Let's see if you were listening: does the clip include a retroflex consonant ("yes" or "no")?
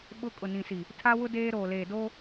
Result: no